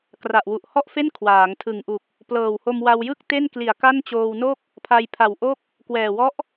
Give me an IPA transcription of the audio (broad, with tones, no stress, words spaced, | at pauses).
kra˨˩ʔwu˨˩ʔhɔ˥˩ʔfe˥˩n kʰwaː˩˦ŋtʰɯ˨˩ŋʔu˨˩k̚ | plɤː˨˩who˧mwa˧w jɯ˥˩k̚te˥˩nkli˨˩a̯ ka˥˩nt͡ɕoː˧wno˥˩k̚ | pʰa˧jpʰa˨˩wʔo˥˩k̚ | kwɛː˨˩wɔ˦˥ʔ